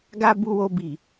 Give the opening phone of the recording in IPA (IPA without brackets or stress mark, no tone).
ɡ